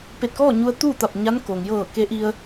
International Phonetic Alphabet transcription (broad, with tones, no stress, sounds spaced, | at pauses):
p e˧˩ t̚ k ɔː˥˨ ɲ u˧ ə̯ t̪ uː˥˨ t̪ a˧˩ p̚ ɲ a˧˥ n k oː˩ ŋ j ɤː˧˩ k e˧˥ ʔ i˧ ə̯